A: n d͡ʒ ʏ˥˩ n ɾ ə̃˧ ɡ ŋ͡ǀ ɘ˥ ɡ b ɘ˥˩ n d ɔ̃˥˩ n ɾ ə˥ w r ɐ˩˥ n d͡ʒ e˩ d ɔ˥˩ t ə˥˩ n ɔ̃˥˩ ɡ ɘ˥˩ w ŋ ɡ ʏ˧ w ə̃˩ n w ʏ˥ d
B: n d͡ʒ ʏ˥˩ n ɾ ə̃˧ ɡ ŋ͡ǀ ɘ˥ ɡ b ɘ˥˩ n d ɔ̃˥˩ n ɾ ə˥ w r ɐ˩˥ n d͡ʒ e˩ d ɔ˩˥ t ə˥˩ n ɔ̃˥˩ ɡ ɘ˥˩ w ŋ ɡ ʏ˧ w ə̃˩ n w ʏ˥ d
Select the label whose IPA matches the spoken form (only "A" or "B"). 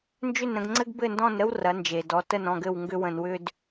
B